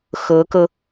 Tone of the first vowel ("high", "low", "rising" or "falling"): rising